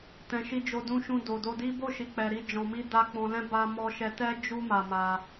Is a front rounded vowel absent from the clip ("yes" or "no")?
yes